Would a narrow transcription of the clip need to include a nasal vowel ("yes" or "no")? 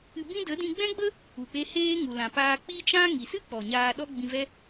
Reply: yes